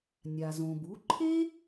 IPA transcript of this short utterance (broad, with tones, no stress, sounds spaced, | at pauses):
nʲ a˩ z õ˩ b u˩˥ ǃʰ e˥